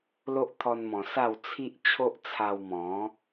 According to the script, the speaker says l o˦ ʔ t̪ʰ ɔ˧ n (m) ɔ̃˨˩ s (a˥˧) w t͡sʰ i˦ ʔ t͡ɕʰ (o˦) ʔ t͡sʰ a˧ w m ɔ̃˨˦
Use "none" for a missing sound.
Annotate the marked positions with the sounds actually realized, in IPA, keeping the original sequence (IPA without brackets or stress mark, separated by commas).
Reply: m, a˥˧, o˦